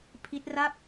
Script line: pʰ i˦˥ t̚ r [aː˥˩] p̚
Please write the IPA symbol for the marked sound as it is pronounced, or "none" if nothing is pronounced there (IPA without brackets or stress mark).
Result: a˥˩